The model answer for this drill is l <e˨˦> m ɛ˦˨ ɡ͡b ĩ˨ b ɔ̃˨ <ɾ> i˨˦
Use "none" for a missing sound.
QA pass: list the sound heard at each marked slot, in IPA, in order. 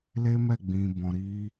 e˦, ɾ

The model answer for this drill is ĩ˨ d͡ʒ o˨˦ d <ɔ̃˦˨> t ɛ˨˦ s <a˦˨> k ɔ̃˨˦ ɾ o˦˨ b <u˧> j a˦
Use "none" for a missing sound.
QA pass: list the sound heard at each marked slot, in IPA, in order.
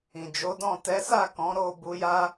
ɔ̃˦˨, a˦˨, u˧

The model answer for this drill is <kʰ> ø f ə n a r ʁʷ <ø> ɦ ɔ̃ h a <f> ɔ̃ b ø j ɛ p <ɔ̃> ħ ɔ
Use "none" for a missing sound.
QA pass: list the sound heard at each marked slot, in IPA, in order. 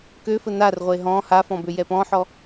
k, e, f, ɔ̃

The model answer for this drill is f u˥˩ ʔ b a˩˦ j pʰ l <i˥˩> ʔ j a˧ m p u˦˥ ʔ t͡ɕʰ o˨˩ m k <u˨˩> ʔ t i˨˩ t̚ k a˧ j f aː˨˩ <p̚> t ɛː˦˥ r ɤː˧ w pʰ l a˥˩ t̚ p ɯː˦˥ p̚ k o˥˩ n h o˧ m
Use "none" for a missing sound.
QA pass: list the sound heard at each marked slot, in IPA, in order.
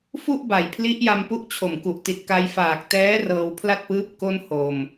i˦˥, u˨˩, k̚

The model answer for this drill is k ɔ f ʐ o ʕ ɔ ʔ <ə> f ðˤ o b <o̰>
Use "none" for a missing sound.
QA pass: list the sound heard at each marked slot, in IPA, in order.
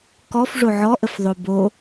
ə, o

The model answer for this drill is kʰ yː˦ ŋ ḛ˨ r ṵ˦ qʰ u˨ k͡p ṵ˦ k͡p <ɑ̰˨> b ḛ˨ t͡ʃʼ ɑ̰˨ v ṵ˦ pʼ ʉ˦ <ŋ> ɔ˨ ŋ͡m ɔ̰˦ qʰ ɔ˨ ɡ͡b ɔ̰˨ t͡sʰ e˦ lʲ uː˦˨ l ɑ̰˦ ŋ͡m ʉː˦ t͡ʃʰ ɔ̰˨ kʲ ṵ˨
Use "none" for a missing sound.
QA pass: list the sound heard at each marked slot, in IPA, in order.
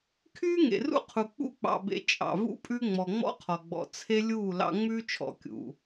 ɑ̰˨, ŋ͡m

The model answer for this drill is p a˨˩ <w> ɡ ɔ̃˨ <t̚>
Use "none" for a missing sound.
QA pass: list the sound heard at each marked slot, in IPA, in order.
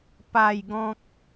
j, k̚

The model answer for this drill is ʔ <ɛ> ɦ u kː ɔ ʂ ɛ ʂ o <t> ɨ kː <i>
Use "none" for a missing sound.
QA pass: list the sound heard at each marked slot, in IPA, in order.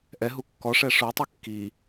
ɛ, tˤ, i

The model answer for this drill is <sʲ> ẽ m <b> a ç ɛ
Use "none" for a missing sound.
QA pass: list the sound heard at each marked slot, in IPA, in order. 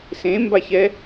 s, b

